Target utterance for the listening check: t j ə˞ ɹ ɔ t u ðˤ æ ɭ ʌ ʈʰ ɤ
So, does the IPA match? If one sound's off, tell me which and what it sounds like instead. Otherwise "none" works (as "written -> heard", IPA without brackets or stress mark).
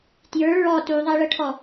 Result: ɤ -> ɔ